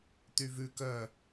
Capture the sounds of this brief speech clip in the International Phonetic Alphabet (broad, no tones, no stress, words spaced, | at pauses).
t̪yvʉ kœ